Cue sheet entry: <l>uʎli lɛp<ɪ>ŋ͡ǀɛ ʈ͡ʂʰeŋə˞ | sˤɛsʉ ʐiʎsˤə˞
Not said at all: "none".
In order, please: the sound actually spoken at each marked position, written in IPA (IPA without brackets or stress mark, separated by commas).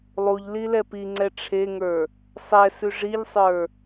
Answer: lˠ, i